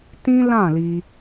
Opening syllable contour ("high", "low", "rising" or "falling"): high